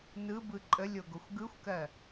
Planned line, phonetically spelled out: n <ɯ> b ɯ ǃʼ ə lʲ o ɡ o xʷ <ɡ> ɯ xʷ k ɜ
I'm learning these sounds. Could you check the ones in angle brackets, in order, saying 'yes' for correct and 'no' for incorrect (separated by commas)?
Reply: yes, yes